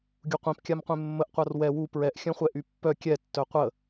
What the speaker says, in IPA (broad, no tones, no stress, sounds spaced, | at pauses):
ɡʲ u qʷ ĩ p kʲ a m qʷ ẽ mː ə ʔ qʷ a r w ɛ w u p ɹ ɛ ʔ xʲ œ̃ χʷ ɛ ʔ y pː œ kʲ ɛ tː œ qʷ ə